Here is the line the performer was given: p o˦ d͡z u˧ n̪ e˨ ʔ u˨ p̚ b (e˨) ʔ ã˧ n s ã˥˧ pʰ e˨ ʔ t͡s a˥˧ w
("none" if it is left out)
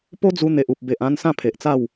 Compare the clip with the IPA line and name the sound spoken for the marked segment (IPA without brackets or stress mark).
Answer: e˨